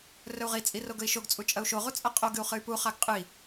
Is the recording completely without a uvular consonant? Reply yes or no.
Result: no